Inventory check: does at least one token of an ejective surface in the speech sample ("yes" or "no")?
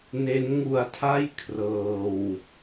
no